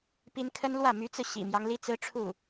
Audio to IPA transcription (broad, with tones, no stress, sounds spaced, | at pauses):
p i˥ n kʰ ə˥ n l w ä˥˩ m y˧˥ t͡s ɹ̩˧ ɕ ḭ˨˩ m j ɑ˦ ŋ l i˥ t͡s ɹ̩˥ ʈ͡ʂʰ u˥˩